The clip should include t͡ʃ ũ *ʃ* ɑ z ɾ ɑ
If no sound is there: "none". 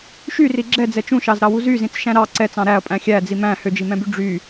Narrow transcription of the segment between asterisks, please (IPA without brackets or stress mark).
ʃ